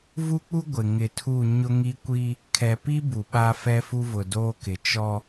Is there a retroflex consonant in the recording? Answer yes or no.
no